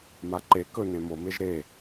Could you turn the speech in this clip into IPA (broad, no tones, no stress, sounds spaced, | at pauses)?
m a ǃ e k ɵ n ẽ m o m e ʒ ɾ e